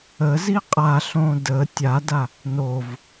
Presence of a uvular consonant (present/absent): present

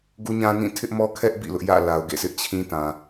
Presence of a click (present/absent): absent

